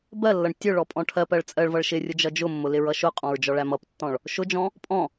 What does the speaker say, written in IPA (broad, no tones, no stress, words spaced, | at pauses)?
bɜlːʌɳ tʲʊ ɭɔpʼɔ̃ʈʰɜpɜɭ t͡sʼɜɭvʌɭ ʃɪrʲʊ d͡ʒʌd͡ʒʊmːʊ lɪɹʌʃʊqʼɔ̃ɹ d͡ʒɔɭæmʌptːɔ̃ɭ | ʃʊd͡ʒɔ̃ | pʼɔ̃